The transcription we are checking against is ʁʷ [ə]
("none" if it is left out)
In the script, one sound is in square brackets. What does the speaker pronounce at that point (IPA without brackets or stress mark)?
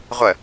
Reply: ə